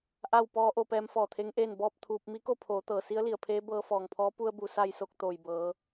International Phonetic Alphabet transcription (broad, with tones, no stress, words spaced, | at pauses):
ʔa˥˨wpɔː˧˥ʔo˧ pɛː˧˥m fɔː˧˩t̪ʰe˧˥ŋʔeː˥˨n bɔː˥˨p̚t̪ʰuː˧p̚ mi˧˥ko˥˨ pʰoː˩˧ t̪ɤː˩si˧˥ə̯li˧˩ə̯pʰeː˧˥ bɤː˧ fɔː˧˩ŋpʰɔː˧˥ pu˧ə̯bu˩ sa˧˩jso˧˩k̚ t̪oː˩jbɤː˩˧